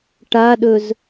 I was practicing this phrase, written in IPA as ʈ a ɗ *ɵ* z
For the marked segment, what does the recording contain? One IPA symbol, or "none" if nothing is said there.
ɵ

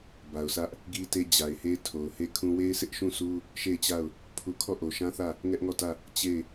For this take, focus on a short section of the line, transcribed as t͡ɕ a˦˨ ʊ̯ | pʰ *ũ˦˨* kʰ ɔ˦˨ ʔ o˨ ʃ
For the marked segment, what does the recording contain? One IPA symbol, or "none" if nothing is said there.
u˦˨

